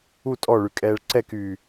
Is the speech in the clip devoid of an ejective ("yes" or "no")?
no